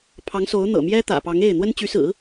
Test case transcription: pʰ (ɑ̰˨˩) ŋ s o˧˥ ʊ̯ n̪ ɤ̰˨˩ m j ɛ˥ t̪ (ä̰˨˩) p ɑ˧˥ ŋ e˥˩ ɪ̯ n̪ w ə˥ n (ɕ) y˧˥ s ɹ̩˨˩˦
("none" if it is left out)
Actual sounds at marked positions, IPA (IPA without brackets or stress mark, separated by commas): ɑ˧˥, ä̰˨˩, t͡ɕ